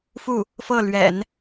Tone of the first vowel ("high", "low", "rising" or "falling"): falling